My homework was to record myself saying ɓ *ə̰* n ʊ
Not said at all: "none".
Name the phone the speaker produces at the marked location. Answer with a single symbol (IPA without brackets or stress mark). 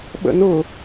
ə̰